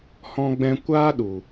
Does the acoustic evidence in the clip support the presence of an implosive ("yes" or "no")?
yes